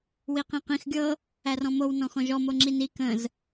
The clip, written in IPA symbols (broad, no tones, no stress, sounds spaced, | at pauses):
w i q ĩ q ĩ x ɡʲ ɤ | æ r ɔ̃ m o w n ɔ̃ x ɔ̃ ʒ ɔ m o ŋ͡ǁ i n i k ə̃ z